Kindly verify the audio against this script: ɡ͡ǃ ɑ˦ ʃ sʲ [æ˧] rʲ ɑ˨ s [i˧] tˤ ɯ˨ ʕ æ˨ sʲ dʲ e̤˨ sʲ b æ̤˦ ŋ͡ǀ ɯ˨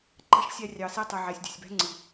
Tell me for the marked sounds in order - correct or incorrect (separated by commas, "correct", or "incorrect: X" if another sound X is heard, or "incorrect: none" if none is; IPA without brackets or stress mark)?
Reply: correct, correct